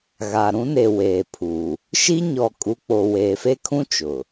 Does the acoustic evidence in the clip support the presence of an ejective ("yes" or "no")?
yes